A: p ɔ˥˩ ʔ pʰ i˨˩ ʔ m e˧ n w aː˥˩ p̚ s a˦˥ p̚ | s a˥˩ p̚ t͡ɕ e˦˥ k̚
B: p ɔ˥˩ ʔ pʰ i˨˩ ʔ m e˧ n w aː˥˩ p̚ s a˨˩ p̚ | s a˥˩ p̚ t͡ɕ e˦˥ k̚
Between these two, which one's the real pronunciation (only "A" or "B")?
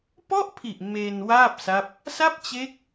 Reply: A